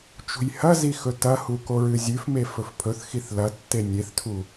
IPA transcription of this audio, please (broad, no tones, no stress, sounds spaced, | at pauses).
t͡ʃ ṳ j h ɐ z i x ɵ t ɐ h u k o ɹ ɨ zʲ ʉ f m e f ɵ f pʰ ɵ θ x i θ l ɐ tː e nʲ e θ tʰ u